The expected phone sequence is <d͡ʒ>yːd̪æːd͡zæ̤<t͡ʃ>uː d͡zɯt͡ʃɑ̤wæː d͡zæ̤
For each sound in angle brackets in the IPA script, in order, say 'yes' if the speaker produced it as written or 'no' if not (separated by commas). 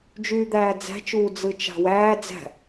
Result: yes, yes